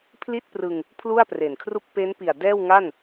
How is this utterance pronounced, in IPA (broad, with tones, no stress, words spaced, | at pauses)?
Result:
pʰli˥˩t̚prɯ˧ŋ | pʰlu˥˩a̯pre˨˩nkʰru˥˩k̚ pe˦˥npi˨˩a̯ dɛː˥˩wŋa˥˩n